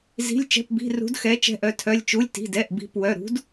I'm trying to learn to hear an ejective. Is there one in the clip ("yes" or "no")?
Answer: no